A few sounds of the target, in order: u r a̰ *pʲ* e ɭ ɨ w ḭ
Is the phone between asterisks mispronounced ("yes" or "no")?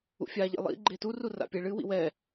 no